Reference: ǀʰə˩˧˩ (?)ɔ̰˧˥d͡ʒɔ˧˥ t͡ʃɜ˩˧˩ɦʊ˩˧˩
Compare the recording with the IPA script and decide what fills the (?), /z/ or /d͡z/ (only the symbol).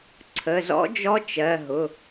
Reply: z